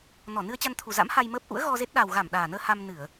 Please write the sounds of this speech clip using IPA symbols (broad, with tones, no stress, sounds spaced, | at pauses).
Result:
n ɔ˧˩ n ɨ˧ ə̯ t͡ɕ a˧ n t̪ʰ u˨˩ z a̰˧˥ m h a˧ j m əː˦˥ p̚ ʔ ṵ˧˥ ə̯ ɣ ɔ˧ z e˦˥ t̚ ɗ a˨˩ w ɣ a˧˩ m ɗ aː˨˩ n əː˧ h a˧ m n ɨ˧˩˨ ə̯